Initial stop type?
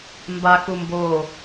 plain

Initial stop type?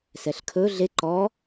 aspirated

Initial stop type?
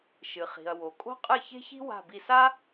ejective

